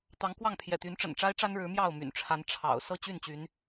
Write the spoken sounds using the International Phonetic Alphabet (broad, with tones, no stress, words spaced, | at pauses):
t̪ɑ˨˦ŋkwɑ˥˨ŋ pʰjɛ̰˨˩t̪y˨˦nʈ͡ʂə̰˨˩nʈ͡ʂa˦ɪ̯ ʈ͡ʂa˦nɻɻ̩˨˦ mjɑ˥˨ʊ̯my̰˨˩nʈ͡ʂʰa˨˦n ʈ͡ʂʰɑ̰˨˩ʊ̯ sɤ˥˨ t͡ɕy˥˨nt͡ɕy˨˦n